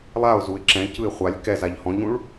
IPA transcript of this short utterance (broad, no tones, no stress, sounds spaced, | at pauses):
lˠ a ʊ̯ z u ɪ̯ ǁ ɛ̃ c ɯ ɪ̯ χʷ a lʲ k ɛ z a ʎ h ɔ̃ ʎ ũ ɭ